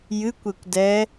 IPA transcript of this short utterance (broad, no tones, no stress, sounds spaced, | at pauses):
j ɨ kʷ e kʷ d ɛ